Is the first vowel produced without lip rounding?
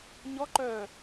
no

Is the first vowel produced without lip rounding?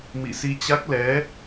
yes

